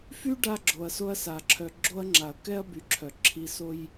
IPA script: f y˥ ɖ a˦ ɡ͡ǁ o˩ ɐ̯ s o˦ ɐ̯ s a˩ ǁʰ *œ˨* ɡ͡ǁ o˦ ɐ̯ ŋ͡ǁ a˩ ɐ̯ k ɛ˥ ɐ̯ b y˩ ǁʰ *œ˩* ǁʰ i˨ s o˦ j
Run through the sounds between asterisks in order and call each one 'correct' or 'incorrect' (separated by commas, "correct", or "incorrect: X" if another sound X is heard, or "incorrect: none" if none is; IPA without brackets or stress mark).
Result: correct, correct